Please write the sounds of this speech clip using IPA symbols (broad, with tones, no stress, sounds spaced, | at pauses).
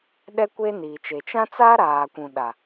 ɗ ɛ˦ kʷ eː˦ n iː˨ t͡ʃ e˨ t͡ʃ ã˦ t͡s aː˦ ɾ aː˨ kʷ ũ˨ ɗ a˨